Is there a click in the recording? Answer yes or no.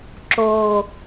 yes